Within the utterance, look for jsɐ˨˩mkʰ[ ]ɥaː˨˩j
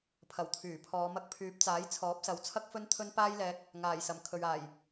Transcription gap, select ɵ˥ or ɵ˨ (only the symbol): ɵ˨